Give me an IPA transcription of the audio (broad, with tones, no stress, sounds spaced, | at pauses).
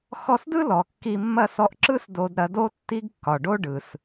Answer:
x ɔ˧ s d ɯ˥ l ɔ˩ kː i˧ mː ɐ˥ s ɔ˧ ʔ ǁ ɯ˥ s d o˧ d ɾ ɐ˧ d o˥ tː i˥ ɡ kː ɒ˩ ɖ o˥ ɖ ɯ˩ s